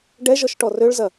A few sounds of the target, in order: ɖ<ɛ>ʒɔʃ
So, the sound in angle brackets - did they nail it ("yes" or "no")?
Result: yes